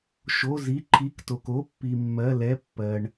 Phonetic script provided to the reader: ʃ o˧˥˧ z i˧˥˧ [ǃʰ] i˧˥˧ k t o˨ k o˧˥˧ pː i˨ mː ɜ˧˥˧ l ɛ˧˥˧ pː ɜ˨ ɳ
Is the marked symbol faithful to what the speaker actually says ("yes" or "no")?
yes